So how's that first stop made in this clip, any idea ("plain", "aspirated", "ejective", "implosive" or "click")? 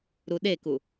implosive